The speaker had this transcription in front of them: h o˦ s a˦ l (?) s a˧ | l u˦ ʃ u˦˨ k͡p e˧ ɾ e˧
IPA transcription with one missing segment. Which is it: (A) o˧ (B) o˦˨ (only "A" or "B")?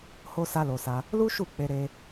A